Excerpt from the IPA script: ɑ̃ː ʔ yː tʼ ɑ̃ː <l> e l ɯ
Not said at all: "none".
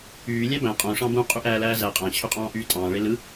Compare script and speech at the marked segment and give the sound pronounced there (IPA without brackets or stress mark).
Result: ɭ